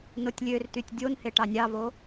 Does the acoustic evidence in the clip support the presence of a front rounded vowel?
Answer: yes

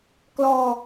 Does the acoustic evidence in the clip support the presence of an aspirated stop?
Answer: no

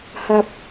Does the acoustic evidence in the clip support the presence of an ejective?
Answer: no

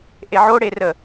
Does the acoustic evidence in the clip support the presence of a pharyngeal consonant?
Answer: yes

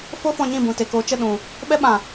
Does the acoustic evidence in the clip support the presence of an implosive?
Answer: yes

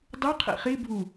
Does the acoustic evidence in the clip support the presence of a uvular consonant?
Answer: yes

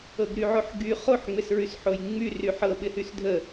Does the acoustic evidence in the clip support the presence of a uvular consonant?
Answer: yes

